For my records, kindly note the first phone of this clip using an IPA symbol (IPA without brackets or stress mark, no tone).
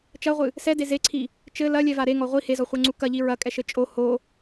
t͡ʃ